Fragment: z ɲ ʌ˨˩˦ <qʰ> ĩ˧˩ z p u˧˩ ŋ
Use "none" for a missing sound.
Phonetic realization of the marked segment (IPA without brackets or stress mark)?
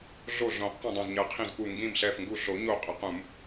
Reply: qʰ